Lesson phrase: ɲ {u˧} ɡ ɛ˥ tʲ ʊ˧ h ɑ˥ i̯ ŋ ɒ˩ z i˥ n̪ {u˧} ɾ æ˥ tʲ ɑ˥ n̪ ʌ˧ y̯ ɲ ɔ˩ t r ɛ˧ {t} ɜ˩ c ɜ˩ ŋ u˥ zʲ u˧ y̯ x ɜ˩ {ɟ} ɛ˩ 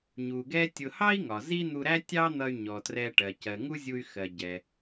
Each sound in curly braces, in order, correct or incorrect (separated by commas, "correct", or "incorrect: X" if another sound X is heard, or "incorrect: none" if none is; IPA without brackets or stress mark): incorrect: u˩, correct, incorrect: ʈ, correct